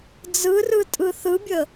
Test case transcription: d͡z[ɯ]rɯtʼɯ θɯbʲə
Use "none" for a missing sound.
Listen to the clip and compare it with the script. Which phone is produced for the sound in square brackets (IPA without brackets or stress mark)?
ɯ